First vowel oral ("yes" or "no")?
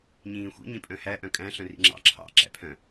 no